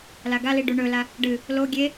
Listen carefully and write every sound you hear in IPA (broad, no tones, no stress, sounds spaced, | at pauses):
l a ɡ a l i ɖ u ɳ ɵ l a | ɖ ɨ | l o ɡʲ e